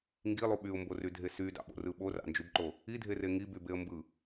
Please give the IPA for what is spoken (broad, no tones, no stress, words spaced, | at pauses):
ŋɡilˠu ɓyʊ̯mborydʱe sydɑ̰ɓo̰rɯ ɓorɑ̰nd͡ʒybǃo | idʱere ŋibybeə̯ mbɯ